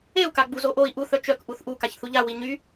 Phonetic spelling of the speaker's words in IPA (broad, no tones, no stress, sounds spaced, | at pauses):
e u̯ k a ɡ͡b u z o ʔ o i̯ ʔ u θ œ t͡ʃ œ k ʔ u θ ʔ u k a ç θ u ʎ a w i ɲ y